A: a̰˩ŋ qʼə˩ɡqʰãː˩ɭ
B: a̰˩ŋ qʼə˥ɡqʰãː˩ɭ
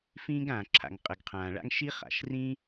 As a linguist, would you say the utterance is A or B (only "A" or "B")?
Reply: A